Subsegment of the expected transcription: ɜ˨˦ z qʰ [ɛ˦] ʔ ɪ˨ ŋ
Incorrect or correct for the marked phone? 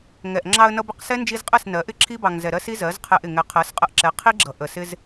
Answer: incorrect: ɛ˧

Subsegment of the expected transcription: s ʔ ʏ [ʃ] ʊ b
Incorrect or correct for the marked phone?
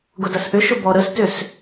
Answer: correct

